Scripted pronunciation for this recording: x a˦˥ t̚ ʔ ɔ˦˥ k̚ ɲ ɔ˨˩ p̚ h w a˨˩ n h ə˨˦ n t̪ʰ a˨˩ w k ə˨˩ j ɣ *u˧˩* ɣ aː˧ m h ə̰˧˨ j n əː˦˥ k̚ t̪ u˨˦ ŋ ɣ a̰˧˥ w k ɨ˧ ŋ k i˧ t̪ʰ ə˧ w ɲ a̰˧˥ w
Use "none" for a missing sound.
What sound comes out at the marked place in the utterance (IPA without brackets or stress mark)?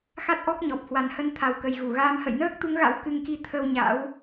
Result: u˧˩